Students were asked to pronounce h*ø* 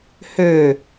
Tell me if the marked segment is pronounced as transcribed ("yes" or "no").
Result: yes